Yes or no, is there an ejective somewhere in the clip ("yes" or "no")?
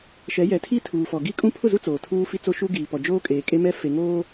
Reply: yes